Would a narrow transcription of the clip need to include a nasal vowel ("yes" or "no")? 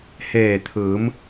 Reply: no